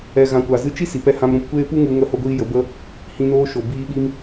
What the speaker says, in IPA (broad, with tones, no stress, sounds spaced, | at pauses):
ɛ˨ ɣ ã˨ kʷ a˨ z ɨ˧ t͡ʃ i˦ s i˨ p ɛ˧ h ã˧ m ɾ ũ˧ p kʷ eː˦ p u˦ ŋ u˧ ŋ ə˧ h o˧ ɡʷ iː˧ j ə˨˦ b ə˦ | h ĩ˧ n oː˧ ʃ o˨ b iː˧ ɓ i˧ m